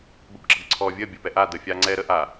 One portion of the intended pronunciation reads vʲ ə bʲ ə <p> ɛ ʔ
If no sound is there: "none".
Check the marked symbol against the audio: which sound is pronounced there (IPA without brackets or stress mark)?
p